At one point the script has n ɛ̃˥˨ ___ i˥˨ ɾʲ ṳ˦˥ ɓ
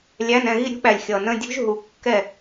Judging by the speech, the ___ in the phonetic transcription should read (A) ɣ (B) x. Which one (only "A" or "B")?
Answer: A